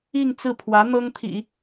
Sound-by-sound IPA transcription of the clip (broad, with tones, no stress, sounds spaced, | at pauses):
i˥˧ ŋ t͡s ɹ̩˥˩ pʰ w ä˧˥ n̪ ɤ˥ ŋ t̪ʰ ḭ˨˩˦